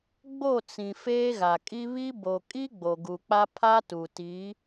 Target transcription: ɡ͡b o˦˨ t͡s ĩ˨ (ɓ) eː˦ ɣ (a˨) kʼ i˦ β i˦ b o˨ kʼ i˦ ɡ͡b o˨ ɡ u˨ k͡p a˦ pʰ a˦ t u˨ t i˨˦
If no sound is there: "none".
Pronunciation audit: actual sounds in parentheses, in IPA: f, a˨

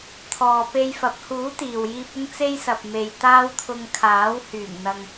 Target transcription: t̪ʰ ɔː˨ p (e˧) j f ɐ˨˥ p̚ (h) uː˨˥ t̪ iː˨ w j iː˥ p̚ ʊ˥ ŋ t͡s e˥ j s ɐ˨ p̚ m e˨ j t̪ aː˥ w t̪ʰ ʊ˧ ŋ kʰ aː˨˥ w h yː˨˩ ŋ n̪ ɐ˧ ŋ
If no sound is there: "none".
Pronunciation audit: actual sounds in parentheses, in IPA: e˧, h

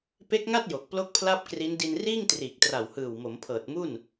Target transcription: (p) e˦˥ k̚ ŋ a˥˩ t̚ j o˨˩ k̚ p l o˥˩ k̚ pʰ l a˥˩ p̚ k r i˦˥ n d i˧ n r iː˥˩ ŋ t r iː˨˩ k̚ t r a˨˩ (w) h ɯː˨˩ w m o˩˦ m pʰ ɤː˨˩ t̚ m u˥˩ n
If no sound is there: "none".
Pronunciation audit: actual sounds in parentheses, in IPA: p, w

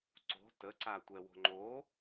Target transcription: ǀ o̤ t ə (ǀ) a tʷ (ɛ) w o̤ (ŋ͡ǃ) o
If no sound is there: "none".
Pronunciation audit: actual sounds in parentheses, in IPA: ǀ, ɛ, ŋ͡ǃ

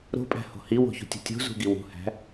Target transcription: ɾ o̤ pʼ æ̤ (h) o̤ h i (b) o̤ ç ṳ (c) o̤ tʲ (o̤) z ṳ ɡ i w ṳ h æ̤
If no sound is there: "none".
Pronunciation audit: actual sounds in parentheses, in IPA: h, w, tʲ, o̤

